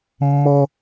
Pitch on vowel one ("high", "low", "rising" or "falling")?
high